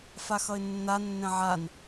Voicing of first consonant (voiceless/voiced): voiceless